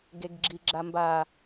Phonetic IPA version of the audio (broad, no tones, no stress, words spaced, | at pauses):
ɡeɡɡ͡ǁiɡ͡ǁamba